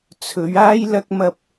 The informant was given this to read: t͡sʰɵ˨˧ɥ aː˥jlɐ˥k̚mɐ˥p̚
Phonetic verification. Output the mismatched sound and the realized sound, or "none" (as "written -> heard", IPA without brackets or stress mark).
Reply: none